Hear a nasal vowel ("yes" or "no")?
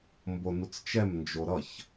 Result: no